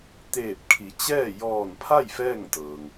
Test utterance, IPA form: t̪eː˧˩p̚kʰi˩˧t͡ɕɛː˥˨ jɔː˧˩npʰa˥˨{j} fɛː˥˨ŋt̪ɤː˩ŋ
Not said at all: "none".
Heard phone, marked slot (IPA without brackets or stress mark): j